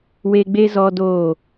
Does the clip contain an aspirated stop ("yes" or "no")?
no